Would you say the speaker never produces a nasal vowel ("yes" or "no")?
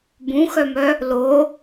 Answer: no